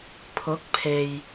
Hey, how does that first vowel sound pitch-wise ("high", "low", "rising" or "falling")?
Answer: rising